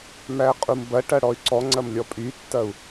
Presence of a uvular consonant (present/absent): present